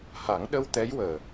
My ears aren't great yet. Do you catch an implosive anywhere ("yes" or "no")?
yes